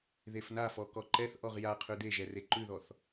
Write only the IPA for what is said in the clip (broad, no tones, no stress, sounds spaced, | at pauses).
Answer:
ð e f n a f ɔ k ɔ ǃ ɛ θ ʔ ɔ ʁ j a qʰ ʉ d̪ e ʒ ɛ r e ǃ ʉ ð ɔ θ